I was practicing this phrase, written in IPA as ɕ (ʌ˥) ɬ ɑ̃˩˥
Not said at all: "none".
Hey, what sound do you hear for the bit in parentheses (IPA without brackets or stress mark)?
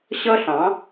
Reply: ʌ˥